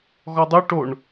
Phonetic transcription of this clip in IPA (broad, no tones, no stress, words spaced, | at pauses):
ɣɔdˤu ʈoɳ